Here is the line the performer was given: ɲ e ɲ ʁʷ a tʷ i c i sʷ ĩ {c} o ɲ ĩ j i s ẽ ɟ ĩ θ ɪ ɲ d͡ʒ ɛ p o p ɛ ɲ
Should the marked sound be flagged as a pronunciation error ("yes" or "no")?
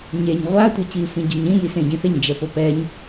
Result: yes